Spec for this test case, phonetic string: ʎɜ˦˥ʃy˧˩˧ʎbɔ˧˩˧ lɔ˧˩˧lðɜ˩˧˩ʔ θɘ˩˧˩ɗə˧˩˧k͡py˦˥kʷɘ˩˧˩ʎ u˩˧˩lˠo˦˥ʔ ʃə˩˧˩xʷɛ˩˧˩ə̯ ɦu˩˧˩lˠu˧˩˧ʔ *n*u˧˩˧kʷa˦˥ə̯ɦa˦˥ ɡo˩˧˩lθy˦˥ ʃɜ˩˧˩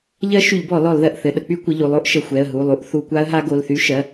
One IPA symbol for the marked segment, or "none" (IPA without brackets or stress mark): θ